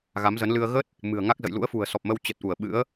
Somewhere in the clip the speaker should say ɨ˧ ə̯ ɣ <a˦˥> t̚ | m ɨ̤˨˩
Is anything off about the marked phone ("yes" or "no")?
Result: yes